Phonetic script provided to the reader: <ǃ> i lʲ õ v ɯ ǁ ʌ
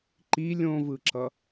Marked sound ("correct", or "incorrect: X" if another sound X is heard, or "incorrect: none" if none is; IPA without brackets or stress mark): correct